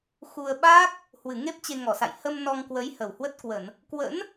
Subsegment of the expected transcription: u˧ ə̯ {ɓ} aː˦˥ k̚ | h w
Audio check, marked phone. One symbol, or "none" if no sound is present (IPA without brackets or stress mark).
ɓ